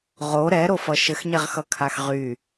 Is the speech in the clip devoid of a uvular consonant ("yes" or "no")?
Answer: no